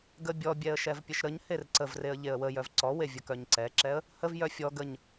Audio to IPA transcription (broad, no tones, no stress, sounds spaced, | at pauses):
ɡ ə bʲ ɔ bʲ ɛ ə̯ ʃ ɛ v pʲ ə ʃ ɾ ə ɲ h e r ǀ ə v r e ə̯ ʎ e ə̯ w ə j œ v ǀ ɔ w e vʲ ə k œ ɲ ǀ ɛ ǁ ɛ ə̯ | h ə v j œ fʲ ɔ ɡ ə ɲ